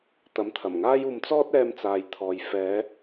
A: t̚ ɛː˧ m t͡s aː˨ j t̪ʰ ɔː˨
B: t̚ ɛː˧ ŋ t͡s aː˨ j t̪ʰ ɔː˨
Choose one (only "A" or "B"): A